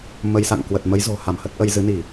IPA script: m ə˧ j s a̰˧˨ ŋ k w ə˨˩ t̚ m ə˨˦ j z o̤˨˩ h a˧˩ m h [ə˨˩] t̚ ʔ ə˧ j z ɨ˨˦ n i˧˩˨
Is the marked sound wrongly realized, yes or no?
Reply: yes